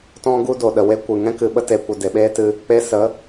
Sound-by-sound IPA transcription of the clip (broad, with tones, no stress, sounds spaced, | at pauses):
t ɔ̃˧ ɡ u˦ d o˨ ɗ ə˨ w e˦ kʷ ɨ˨ ŋ ɛ̃˦ k ɨ˨ ɓ ə˦ t e˧ kʷ ə˧ d e˨ ɓ eː˦ t ɨ˧ | k͡p e˧ s ə˨˦